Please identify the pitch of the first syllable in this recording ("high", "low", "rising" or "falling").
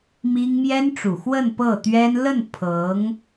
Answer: high